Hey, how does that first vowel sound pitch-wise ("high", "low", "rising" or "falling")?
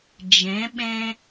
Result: rising